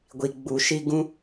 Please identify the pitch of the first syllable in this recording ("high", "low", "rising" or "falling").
low